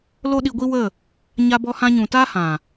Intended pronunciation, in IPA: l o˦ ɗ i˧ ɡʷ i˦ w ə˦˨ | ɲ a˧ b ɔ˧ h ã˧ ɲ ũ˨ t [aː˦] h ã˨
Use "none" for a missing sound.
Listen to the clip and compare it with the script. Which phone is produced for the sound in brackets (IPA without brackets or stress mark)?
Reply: aː˦